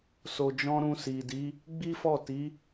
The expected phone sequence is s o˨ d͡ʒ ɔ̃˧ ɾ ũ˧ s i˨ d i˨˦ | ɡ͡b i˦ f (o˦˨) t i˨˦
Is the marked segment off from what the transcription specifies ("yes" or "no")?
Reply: yes